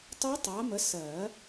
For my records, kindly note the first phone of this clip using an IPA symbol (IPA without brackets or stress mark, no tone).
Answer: tˤ